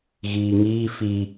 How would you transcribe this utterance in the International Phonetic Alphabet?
ɣ iː ŋ iː f i

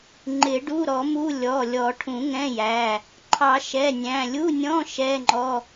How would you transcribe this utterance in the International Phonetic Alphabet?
ŋ͡ǃ ɪ˨˩˦ ɖ u˧˥˧ ɾ ɔ˨˩˦ m u˧˥˧ lʲ ɔ˩˧˩ lʲ ɔ˨˩˦ ʈʰ ũ˨˩˦ ŋ ɛ̃˧˥˧ j æ˩˧˩ | ǃʰ ɑ˨˩˦ ʃ ɛ˩˧˩ nʲ æ̃˩˧˩ lʲ u˧˥˧ nʲ ɔ̃˧˥˧ ʃ ɛ˧˥˧ ŋ͡ǃ ɔ˧˥˧

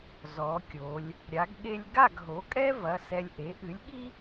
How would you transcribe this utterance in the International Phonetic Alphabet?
z ɔ˩˧ kʲ o˩˧ lʲ | ɾʲ a˩˧ ɡ ɠ e˧ lʲ ɡ a˥˨ ɡ ɦ o˩˥ kʼ ɛ˥ v ɐ˩˧˩ s ɛ˧ lʲ ʔ e˩˥ ʔ ɨ˩˥ lʲ ɠ i˥

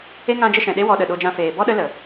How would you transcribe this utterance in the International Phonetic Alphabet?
e˦ ŋ ã˦ d͡ʒ ə˦ ʃ ɛ̃˨ ɗ e˦ w ɔ˧ ɗ ə˨ ɗ o˧ d͡ʒ ã˧ f eː˨ b ɔ˦ ɗ ə˦ l ə˨

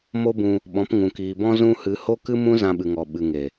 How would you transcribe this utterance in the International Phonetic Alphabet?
m o˦ b ũ˧ | ɓ ɔ̃˨˦ p ŋ ũ˨ k iː˨ b ɔ̃˦ z ũ˦ h ɨ˧ h o˦ k ɨ˦ m ũ˦ z ã˧ ɓ ɨ˨ ŋ ɔ˨ ɓ ɨ˨ ŋ e˨

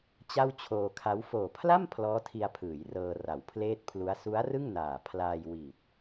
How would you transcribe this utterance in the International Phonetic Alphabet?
t͡ɕ a˥˩ w t͡ɕʰ oː˧ kʰ a˦˥ w f oː˨˩ pʰ l a˥˩ m pʰ l ɔː˦˥ tʰ i˧ a̯ pʰ ɯː˩˦ j r ɤː˧ r a˩˦ w pʰ l eː˥˩ t̚ pʰ l u˦˥ a̯ s u˦˥ a̯ r ɯ˥˩ ŋ n aː˨˩ pʰ l aː˧ j w i˨˩ t̚

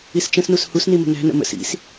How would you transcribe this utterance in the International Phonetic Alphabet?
i s t͡ʃ ə̃ s n u s h u s n i m ə̤ n æ̤ n ə̰ m ə̰ s ḭ s

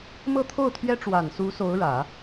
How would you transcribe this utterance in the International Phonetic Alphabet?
m ɤ˥˧ t̪ʰ o˥˩ ʊ̯ t̪ʰ ɥ ɛ˥ ʈ͡ʂ w a˨˩ n s u˧˥ s o˧˥ ʊ̯ ɻ ä˨˩˦

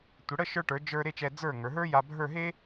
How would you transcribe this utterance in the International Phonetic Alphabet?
tʷ ə˩˧ ɽ ə˥˧ ʃ ə˞˧ ʈ ə˞˩˧ d͡ʒ ə˞˧ ɾ e˥˧ t͡ʃ ɛ˧ d͡z ə˞˧˩ ŋ ə˞˩˧ ɦ ə˞˥ j a˧ bʱ ə˞˥˧ ɦ e˥

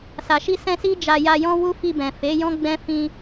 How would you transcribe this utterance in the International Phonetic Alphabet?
s a˨ ʃ i˧ s ɛ̃˧ s i˦ d͡ʒ a˧ j a˧ j ɔ̃˦ w u˦ f i˧ b ɛ̃˨ f e˨˦ j ɔ̃˦ ɡ͡b ɛ̃˦ f ĩ˦

